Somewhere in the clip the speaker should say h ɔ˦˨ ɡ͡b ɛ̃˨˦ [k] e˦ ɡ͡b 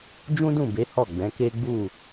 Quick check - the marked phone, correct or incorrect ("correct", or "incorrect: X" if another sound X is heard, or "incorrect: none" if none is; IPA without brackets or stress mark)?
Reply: correct